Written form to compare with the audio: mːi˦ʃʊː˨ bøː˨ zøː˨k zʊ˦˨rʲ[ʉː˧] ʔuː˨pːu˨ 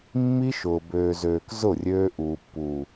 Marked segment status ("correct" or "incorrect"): incorrect